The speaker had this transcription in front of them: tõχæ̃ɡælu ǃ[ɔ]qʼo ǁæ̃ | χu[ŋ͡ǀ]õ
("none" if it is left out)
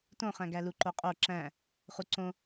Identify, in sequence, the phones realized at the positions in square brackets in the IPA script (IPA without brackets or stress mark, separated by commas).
o, ǀ